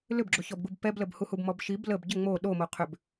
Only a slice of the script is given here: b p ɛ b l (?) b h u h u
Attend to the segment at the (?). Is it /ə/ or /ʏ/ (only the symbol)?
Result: ə